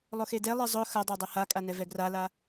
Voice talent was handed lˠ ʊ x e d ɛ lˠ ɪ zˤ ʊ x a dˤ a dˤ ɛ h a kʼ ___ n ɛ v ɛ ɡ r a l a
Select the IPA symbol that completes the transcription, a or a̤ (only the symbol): a